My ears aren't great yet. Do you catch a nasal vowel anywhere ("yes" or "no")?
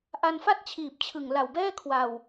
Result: no